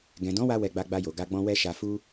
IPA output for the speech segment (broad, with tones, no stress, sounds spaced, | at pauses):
ɡ ɛ̃˨ d ɔ̃˨˦ w a˧ w ɛ˧ ɡ͡b a˧ ɡ͡b a˧ j o˨ ɡ a˧ ɡ͡b ɔ̃˧ w ɛ˦ ʃ a˧ f u˦